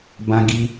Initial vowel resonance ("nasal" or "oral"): nasal